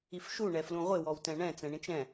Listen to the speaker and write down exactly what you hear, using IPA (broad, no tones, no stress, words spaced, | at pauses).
ifʃu ɳɛflũʁʷɪ wɔwtɛ̃ɳɛ̃ t͡sɛ̃ɳĩt͡ʃɛ̃